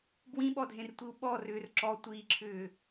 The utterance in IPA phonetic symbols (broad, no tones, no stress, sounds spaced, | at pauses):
b w ĩ ɓ ɔ dʱ ẽ r tʷ i u̯ ɓ ɔ r ʏː r ǁ ɔ tʷ iː ǁʰ ʏː